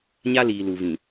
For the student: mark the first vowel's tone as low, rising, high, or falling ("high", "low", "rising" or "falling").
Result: high